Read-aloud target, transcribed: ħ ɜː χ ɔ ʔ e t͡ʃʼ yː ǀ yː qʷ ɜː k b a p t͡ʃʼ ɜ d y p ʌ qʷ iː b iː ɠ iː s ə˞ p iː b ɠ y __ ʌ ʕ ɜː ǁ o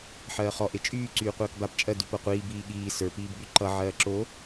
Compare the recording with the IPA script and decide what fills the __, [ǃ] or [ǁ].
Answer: ǃ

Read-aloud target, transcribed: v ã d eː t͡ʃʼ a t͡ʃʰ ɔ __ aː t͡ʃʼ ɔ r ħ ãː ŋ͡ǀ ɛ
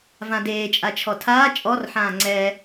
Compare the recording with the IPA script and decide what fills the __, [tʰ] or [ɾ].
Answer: tʰ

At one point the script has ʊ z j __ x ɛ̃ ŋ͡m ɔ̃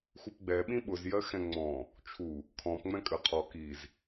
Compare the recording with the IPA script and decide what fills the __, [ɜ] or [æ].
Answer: ɜ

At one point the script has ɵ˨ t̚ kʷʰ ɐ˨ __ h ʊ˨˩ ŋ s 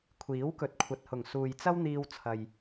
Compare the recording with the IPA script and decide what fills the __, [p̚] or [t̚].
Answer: t̚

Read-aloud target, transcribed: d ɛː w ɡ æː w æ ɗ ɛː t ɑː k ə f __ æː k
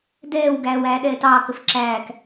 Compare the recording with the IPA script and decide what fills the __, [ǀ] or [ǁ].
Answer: ǁ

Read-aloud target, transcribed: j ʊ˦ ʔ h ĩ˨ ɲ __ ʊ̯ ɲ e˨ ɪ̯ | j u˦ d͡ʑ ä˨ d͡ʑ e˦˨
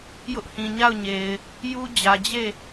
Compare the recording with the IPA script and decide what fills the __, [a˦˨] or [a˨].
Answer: a˦˨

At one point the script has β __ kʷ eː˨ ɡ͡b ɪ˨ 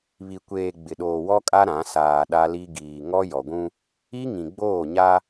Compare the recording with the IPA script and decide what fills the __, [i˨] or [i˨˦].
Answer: i˨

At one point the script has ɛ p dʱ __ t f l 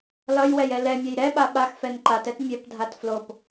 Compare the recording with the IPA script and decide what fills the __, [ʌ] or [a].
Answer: a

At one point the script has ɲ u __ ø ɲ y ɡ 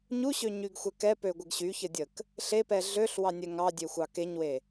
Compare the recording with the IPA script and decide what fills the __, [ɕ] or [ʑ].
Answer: ɕ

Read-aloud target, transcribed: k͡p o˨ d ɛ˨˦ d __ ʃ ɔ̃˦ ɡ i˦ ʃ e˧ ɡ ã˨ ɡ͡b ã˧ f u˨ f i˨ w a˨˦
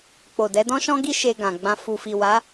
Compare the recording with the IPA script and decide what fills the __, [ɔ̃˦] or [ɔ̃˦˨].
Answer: ɔ̃˦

